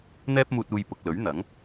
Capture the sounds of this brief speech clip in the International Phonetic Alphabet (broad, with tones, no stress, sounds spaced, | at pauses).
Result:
n̪ ɛː˧ p̚ m uː˨ t̚ uː˨ j p ʊ˨ k̚ l ɵ˨˥ ɥ n̪ ɐ˨˥ ŋ